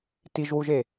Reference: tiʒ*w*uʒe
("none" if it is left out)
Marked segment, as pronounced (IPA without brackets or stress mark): w